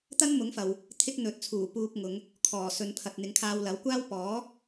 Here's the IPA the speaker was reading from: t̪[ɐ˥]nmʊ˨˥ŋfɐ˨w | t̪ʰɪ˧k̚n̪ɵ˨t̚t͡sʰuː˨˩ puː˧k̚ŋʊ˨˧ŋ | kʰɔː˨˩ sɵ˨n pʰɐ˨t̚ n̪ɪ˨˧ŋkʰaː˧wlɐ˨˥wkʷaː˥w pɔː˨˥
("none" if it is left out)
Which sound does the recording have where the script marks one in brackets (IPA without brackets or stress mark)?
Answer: ɐ˥